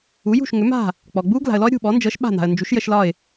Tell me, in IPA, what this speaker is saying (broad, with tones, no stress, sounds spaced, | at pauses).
u˩˥ j ṳ˥˩ ʃ ŋ ʏ˩˥ m a̤˥˩ | k͡p ɔ˩ ɡ͡b u˥ ɡ l a̤˩ ə̯ l ɔ˥ ə̯ ɾʲ ṳ˥˩ ɓ ɔ˩˥ n d͡ʒ ɤ˩˥ ʃ ɓ a̤˥˩ n̪ a̤˩ ə̯ n d͡ʒ u˩˥ ʃ j ə˧ ʃ l ɒ˥˩ ɪ̯